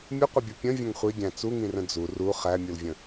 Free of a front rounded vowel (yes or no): yes